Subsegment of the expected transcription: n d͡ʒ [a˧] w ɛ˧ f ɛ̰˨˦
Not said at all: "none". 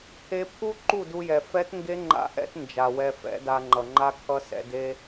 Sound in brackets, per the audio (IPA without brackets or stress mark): a˨